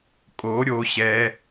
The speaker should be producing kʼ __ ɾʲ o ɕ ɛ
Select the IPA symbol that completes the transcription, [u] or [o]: o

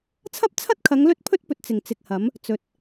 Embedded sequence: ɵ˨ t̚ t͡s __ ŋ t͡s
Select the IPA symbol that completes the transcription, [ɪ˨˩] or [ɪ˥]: ɪ˨˩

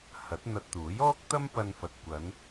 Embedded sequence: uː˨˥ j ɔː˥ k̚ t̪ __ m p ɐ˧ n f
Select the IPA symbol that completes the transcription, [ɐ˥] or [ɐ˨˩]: ɐ˥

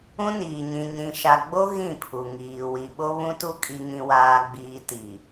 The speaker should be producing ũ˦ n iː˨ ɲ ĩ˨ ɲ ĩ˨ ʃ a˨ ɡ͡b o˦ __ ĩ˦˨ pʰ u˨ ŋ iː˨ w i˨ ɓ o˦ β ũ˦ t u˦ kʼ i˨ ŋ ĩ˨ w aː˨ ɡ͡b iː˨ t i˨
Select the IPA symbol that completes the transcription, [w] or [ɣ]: ɣ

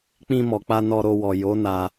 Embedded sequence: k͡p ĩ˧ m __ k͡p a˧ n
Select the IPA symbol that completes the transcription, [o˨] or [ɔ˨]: ɔ˨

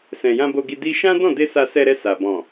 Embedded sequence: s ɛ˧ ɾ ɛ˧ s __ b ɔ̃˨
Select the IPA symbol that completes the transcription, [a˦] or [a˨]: a˨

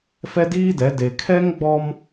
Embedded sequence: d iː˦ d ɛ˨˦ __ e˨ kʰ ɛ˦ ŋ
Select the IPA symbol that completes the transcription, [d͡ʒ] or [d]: d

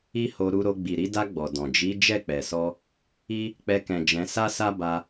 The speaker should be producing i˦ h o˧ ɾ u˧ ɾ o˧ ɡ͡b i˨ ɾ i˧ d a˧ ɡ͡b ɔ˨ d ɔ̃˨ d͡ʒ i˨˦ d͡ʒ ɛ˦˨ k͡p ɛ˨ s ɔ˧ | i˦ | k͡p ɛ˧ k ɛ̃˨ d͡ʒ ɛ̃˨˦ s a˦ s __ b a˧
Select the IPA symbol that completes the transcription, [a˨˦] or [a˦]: a˦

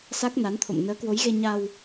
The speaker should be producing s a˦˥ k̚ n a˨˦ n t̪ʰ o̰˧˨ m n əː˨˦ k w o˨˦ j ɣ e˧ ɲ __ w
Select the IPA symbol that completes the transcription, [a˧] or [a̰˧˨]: a˧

